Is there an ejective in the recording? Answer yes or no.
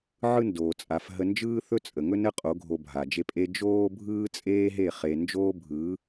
yes